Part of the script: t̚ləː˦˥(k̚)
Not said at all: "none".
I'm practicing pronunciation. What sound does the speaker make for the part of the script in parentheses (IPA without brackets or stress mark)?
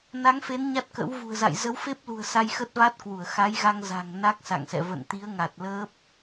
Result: p̚